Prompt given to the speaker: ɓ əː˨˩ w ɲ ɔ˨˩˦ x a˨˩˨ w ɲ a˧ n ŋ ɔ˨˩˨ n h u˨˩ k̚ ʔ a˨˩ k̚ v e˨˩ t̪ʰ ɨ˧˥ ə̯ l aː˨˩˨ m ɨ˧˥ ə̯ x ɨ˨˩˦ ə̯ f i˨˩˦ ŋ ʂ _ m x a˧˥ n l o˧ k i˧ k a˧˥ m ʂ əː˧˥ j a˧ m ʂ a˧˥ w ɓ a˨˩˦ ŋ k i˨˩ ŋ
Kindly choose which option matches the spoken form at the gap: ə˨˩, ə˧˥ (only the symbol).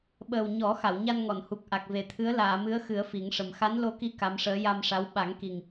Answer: ə˨˩